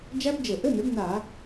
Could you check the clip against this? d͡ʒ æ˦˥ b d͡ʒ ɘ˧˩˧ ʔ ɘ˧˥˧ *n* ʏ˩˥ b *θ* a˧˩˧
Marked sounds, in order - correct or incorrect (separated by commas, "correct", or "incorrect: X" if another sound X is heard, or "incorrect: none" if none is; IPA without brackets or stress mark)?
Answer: correct, incorrect: n